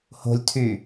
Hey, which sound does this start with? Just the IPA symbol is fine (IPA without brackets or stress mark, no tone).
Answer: h